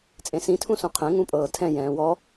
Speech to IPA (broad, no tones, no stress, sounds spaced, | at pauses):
t͡sʼ ẽ s ĩ tʰ ũ s ũ qʰ ẽ ŋ ũ pʼ ɤː tʰ ɛ̃ j ɛ̃ː w ɔ